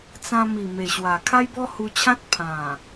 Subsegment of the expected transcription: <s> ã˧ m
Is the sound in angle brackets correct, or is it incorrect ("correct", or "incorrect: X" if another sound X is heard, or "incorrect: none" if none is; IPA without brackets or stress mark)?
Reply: incorrect: t͡s